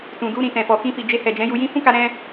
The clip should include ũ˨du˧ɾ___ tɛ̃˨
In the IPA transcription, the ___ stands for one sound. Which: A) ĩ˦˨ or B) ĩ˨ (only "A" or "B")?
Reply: B